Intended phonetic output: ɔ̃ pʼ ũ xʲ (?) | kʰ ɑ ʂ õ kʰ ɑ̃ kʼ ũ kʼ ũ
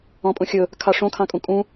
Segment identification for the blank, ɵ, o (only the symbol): ɵ